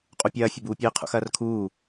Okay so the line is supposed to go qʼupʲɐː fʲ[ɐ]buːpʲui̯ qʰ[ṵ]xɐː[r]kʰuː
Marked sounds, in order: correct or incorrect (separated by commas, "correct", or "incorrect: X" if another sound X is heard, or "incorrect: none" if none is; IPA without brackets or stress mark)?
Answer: correct, correct, correct